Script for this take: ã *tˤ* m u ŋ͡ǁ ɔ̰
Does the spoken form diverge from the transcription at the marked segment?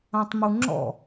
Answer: no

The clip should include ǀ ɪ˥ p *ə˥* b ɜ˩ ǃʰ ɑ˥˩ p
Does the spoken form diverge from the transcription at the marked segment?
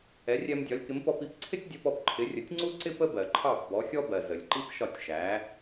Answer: no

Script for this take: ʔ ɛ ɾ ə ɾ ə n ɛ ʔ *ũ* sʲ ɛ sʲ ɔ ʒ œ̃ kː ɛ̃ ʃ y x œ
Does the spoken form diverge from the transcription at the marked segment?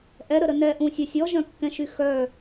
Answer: no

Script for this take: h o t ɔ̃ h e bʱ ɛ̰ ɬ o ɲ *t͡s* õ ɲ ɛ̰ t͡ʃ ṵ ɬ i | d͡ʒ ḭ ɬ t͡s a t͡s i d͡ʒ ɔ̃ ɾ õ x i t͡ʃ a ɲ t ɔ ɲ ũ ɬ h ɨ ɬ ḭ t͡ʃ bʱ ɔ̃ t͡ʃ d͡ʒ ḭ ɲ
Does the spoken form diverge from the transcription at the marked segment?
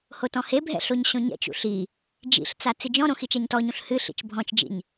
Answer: yes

